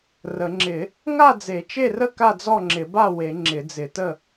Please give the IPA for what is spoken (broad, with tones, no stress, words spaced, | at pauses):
rə˨˩˦ŋ͡ǁɪ˨˩˦ | ŋa˥˨d͡ze˨˩˦t͡ʃe˥˨rə˥˨ ka˥˨d͡zɔ˥˨ŋ͡ǁɪ˨˩˦ba˥˨ we˨˩˦ ŋ͡ǁɪ˨˩˦d͡zɪ˨˩˦tə˥˨